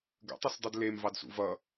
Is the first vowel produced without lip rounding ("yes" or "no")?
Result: yes